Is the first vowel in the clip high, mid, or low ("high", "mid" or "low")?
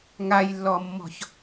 low